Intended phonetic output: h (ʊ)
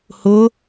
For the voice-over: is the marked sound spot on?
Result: yes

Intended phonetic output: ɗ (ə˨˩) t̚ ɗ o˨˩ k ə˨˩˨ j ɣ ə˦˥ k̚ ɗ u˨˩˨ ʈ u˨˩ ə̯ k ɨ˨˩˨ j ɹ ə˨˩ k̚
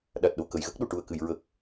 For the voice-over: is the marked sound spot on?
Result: no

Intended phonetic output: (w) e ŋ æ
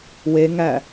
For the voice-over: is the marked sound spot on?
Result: yes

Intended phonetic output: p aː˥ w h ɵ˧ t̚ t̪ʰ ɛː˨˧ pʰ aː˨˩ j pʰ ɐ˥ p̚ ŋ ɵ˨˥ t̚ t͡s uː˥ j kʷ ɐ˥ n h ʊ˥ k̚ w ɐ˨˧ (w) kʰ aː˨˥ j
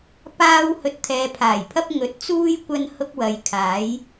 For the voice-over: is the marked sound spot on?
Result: no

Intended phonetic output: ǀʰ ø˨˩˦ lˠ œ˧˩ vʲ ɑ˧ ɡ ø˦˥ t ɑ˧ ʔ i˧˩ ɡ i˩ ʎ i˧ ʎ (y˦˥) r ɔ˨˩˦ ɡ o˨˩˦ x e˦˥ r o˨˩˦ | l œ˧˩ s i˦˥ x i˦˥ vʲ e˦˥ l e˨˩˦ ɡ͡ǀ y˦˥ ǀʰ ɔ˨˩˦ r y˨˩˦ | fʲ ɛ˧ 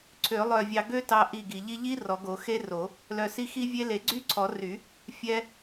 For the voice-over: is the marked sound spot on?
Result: no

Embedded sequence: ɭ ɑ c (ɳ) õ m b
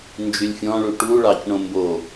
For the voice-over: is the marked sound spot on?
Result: yes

